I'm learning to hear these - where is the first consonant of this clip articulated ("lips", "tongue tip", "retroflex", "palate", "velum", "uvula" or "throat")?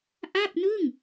throat